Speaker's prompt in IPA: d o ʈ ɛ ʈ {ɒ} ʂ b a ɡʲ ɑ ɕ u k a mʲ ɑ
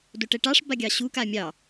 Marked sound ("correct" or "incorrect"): incorrect